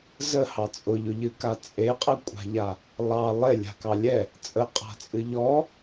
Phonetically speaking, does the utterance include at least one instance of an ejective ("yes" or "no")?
yes